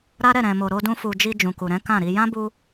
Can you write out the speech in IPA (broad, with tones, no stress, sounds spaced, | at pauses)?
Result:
ɾ a˦ ɾ ɛ˦˨ ɾ ɛ̃˨ m o˨ ɾ o˧ d ũ˧ f u˨ d͡ʒ i˧ d͡ʒ ũ˨ k u˨ ɾ ɛ̃˨˦ k ã˦˨ ɾ i˧ j ã˦ b u˧